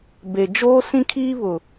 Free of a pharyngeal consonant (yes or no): yes